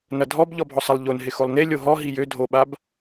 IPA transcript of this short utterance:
n ɐ dʱ ɔ b ʎ ɔ bʱ ɔ sˤ ə lˠ ʎ o n ɦ ɪ x o lˠ n e lʲ o ɦ ɔ ɦ i j ø dʱ o ɓ a b

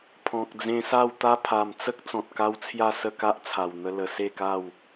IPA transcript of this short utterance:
pʰ ɔ̃˨ k̚ d͡z ẽ˧ s a˥˧ w t̪ a˦ pʰ a˨˩ m t͡s ə˦ k̚ t͡s ɔ̃˨ t̚ k a˦ w t͡sʰ j a˥˧ s ə˥˧ k a˦ ʔ t͡sʰ a˨˩ w n̪ ə˧ l ə˨˩ s e˥˧ k a˥˧ w

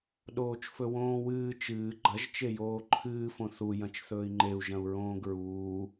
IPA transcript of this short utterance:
ɗ oː t͡ʃ f ɵ w õː w ɨː t͡ʃ ɨː ɡ͡ǃ ɐ ʒ t͡ʃ e j oː ǃʰ ɨː f õ θ u j ɐ̃ t͡ʃ θ ɵː i̯ ŋ͡ǃ e u̯ ʒ ɐ̃ u̯ ɹ õː ɡ ɹ uː

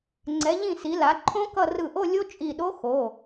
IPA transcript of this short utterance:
ŋ͡ǀ ɛ˩˧ ʎ ĩ˧˩ s i˩˧ l a˩˧ ǃʰ õ˦˥ k ʌ˥˧ r ɯ˧˩ ʔ o˥˧ lʲ o˦˥ t͡ʃʼ i˧˩ ɗ o˦˥ x o˩˧˩

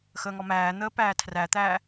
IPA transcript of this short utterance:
x əː ŋ ɔ m æː n̪ əː p æː tʰ r æ t̪ æː

